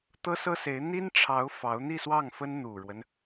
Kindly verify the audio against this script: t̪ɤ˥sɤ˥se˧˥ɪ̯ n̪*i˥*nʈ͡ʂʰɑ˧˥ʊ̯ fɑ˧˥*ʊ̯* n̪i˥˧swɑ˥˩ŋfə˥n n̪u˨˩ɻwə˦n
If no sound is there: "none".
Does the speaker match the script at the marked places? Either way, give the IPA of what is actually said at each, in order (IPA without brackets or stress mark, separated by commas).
i˥, ʊ̯